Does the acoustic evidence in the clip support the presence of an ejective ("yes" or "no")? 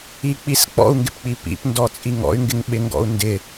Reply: yes